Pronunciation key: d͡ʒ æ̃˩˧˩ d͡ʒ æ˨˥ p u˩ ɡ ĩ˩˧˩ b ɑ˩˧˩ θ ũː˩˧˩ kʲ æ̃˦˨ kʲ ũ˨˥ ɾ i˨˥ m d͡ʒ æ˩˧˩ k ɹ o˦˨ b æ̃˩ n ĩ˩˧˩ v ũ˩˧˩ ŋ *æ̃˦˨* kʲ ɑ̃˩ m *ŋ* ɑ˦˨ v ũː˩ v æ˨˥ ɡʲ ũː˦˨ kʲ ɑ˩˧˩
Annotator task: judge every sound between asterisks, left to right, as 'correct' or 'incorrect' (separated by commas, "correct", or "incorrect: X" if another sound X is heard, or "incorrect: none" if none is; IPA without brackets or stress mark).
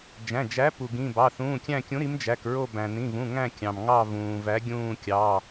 correct, correct